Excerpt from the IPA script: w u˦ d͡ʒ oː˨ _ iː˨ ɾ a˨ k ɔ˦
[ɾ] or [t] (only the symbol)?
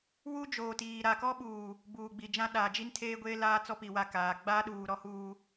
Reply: t